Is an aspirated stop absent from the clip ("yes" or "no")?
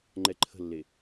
no